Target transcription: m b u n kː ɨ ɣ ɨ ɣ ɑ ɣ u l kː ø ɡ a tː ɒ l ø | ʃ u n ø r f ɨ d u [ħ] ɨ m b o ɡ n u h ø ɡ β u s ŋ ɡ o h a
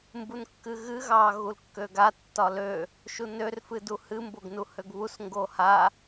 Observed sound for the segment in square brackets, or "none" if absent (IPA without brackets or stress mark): h